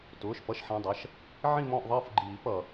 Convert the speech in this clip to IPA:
t ʊː˩˧˩ ʃ p ʌ˦˨ ʃ ħ ĩ˩˧˩ dˤ ʌ˩˧˩ ʃ | ʕ ĩ˦˨ m ɔ̃˦˨ ʔ ðˤ ʌː˦˨ f ɡ͡ǃ iː˨˩˦ p ʌ˩

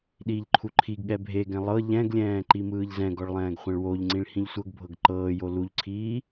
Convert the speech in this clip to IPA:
ɗ iː ʎ ǃʰ u ǃʰ i ɡ ɠ ɛ bʱ e ɡ ɛ̃ lˠ ɤ ʎ ɛ̃ ɡ lʲ ɛ̃ː ǃ i m ɯː ʎ z ɛ̃ ɡ ɔ ɭ lˠ ɛ̃ː ɡ χʷ ɛ̃ ɭ w o ʎ ŋ͡ǀ ĩ ɭ h ĩ ʎ sʷ ɤ ɡ bʱ ɤ ɡ ǃ ɤː j o l u ʎ ǀʰ iː

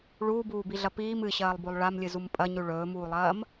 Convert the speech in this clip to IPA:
ɭ uː b uː b i ɮ ɐ p iː m ɨ ɕ ɐː lˠ b o lˠ ɭ a m lʲ ɨ z u m pʼ ɐ ɲ ʉ ɭ ɵː m uː lˠ ɐː m

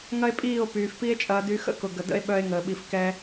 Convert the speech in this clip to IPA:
ŋ ɐ˦ e̯ pʼ iː˦˨ o̯ p yː˨ f p i˦ e̯ t͡ʃʼ ɐː˧ d y˧ x ə̰˦ k ʊ˨ ɡ ə˨ d ə̰˦ e̯ ɓ œ˧ e̯ ŋ əː˨ ɓ i˨ f k ɛ˧

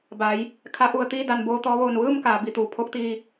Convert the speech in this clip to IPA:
b a˩˧ j | kʰ a˩˧ ʔ u˩ ə̯ t̪ iː˥˨ d a˩ n b oː˧ t̪ ɔː˩˧ ʋ oː˩ n ʋ ɯː˥˨ m k aː˩˧ b i˩ t̪ uː˩ pʰ o˧˥ k̚ t̪ iː˧

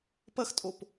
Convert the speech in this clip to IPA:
p ɐ x tʼ o p

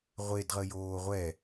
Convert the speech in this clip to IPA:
ʁʷ e d ʁ ə j oː ʁʷ ɛ

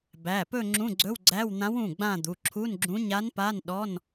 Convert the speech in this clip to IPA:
b æ˩˧˩ p ɵ˦˨ ŋ͡ǁ ũ˧˥˧ ɡ͡ǀ ɵ˧˥˧ w ɡ͡ǀ æ˧˥˧ w n̪ ã˧˥ w ũ˩˧˩ ɡ͡b ã˦˨ d̪ u˩˧˩ ǁʰ u˧˥˧ n ɡ͡ǁ ũ˧˥ ɲ a˧˥ n p a˧˥˧ n ɗ ɔ˧˥˧ n

